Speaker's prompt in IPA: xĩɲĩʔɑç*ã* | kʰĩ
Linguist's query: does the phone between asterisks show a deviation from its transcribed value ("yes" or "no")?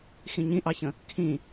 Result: yes